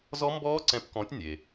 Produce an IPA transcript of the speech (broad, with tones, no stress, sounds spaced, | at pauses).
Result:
z ɔ˦˥ m b ɔː˦˥ ǀ ɛ̃˨˥ p k ɔ̃˨˥ tʲ nʲ e˩